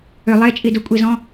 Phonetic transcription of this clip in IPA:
ʏ lˠ e t͡ʃʼ i d ʊ kʷʼ i z ɔ̃

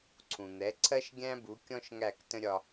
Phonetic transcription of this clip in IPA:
ǀʰ ũ˩ n̪ ɛ˩˥ ǀʰ ɜ˥ ʃ ɡʲ æ̃˥ b u˩˥ kʲ ɔ̃˥ ʃ ŋ æ˥˩ k t ə̃˥ ɾʲ ɒ˧

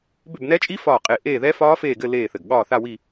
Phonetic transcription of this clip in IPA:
b ʏ˦˨ b n ɛ˦˥ t͡ʃʼ i˦˥ f ɒː˦˨ qʼ e˦˨ ʔ eː˦˨ ð ɛ˦˥ f ɒː˦˥ f eː˦˨ ɡ ɘ˦˨ l eː˦˨ θ ɘ˨˩ ɡ ɠ ɒː˦˨ θ a˦˨ w i˦˨

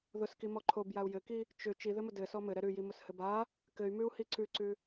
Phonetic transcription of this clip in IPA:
ð ʊ s k i m ɔ ǃʰ o b j a u̯ j ɘ k i | t͡ʃ ʏ t͡ʃ i ð ɘ m ʊ d ɘ s ɔ m ɘ ɾ ɛ ɾ ʉ j i m ʊ s h ɘ b a | k ɘ y̯ m ʉ u̯ h i ǀ ʉ ǀ ʉ

